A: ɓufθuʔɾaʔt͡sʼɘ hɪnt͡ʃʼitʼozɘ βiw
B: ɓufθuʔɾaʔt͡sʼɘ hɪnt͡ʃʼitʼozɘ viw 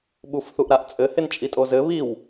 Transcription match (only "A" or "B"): A